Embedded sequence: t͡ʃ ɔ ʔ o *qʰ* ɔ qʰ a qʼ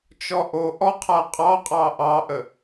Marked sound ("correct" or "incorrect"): incorrect